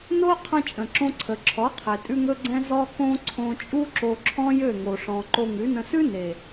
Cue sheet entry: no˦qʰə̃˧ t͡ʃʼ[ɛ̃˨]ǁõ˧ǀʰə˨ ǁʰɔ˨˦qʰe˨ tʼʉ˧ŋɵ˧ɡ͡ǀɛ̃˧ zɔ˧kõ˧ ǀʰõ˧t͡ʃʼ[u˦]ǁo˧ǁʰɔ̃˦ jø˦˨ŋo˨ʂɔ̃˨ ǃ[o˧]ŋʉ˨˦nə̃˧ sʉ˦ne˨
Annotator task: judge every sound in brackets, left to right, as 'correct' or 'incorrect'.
incorrect, correct, correct

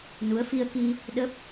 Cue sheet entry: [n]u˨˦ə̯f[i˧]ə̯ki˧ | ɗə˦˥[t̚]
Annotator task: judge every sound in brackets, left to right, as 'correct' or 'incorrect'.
correct, correct, incorrect

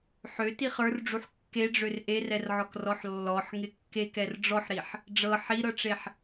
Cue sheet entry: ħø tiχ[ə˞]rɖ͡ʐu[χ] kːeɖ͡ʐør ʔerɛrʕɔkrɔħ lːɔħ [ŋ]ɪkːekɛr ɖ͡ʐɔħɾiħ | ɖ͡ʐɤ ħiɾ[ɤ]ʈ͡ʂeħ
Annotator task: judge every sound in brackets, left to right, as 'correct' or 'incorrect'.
correct, incorrect, correct, correct

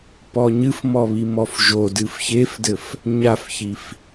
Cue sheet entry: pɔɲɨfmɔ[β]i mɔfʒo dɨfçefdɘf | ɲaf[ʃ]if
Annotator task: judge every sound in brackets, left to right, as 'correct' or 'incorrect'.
correct, incorrect

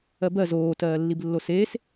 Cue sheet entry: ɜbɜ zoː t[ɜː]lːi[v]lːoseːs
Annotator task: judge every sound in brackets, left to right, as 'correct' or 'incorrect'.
correct, incorrect

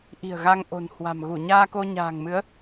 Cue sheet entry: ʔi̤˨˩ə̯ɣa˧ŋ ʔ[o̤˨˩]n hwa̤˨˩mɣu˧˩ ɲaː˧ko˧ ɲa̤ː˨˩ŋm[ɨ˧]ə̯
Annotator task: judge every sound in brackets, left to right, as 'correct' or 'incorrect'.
correct, incorrect

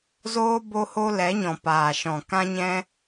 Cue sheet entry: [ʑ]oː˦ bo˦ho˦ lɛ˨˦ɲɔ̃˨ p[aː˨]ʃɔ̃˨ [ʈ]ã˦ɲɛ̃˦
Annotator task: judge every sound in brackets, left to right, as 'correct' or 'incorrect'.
incorrect, correct, incorrect

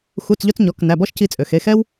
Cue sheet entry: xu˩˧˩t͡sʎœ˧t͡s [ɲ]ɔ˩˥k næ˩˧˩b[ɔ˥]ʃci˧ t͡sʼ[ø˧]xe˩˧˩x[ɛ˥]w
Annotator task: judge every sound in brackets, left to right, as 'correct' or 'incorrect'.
correct, correct, incorrect, correct

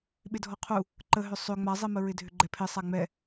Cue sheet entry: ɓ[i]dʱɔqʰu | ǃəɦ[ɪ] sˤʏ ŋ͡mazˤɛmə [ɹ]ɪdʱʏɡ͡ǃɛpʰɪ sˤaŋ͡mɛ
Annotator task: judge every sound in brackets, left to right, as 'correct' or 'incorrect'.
incorrect, incorrect, correct

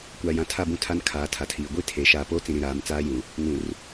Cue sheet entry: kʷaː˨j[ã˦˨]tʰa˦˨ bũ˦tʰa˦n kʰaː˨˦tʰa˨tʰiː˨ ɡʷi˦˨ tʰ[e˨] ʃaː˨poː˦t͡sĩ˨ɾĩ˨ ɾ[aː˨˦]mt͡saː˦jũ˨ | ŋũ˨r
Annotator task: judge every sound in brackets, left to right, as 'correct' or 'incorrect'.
incorrect, correct, correct

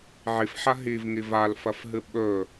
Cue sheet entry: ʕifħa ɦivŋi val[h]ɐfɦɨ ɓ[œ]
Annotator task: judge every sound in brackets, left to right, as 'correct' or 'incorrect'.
incorrect, incorrect

